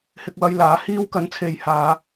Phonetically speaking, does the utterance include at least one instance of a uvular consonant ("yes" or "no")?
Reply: no